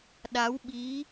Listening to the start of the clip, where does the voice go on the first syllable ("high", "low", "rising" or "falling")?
rising